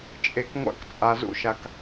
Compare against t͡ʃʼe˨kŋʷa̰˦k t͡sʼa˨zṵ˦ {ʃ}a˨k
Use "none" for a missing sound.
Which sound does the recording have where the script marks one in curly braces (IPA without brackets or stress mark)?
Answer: ʃ